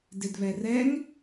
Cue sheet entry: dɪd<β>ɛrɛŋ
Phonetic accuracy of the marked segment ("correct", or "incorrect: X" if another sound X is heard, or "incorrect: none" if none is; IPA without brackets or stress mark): correct